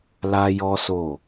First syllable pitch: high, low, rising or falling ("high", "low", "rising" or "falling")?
high